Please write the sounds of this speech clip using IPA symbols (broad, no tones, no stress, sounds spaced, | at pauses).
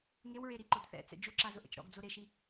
ŋ e w ɹ e ɾ i ǃ o d θ ɛ̰ t͡s ɛ̰ d͡ʒ u ǁ a z ʊ ʔ ɛ̰ t͡ʃ ɾ ɔ̰ ɡ d͡z o ɾ e ʃ i